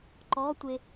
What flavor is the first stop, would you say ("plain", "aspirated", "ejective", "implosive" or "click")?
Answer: click